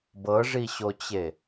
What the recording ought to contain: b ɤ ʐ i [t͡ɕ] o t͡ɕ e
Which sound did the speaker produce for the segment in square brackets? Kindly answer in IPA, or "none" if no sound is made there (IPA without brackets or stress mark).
ɕ